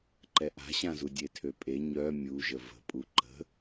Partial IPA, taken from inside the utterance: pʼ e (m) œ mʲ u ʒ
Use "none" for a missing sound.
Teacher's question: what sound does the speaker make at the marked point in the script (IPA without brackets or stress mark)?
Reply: ɲ